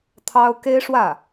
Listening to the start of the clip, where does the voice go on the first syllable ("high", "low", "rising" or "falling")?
high